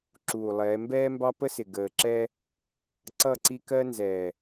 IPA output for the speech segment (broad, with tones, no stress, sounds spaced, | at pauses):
ǁ uː˨ lˠ ɛː˨˦ m b ɛː˦ m b ɑ˦ p ə˦ s ɪ˨ ɡ əː˨ ǁ ɛ˦ | ǀ ʌ˦˨ ǀ i˦ k ɜ˦ n z ɛː˨